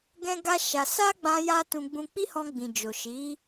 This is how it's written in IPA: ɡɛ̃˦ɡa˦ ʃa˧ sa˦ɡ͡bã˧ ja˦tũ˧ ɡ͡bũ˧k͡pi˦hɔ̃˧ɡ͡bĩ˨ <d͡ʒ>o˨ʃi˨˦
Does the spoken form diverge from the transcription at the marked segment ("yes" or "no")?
no